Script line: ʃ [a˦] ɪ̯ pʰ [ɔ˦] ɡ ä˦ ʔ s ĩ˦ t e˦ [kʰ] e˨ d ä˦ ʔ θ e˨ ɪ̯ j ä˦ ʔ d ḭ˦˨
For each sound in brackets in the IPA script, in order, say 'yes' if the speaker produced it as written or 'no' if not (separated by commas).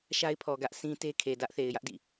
yes, no, yes